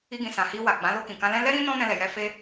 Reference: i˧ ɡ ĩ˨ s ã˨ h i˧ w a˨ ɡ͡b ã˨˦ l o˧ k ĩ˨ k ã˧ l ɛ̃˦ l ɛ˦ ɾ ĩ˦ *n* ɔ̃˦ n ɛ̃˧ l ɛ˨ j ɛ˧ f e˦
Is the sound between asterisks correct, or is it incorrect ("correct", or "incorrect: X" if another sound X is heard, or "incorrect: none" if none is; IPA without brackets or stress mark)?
correct